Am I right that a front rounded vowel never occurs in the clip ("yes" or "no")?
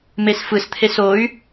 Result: no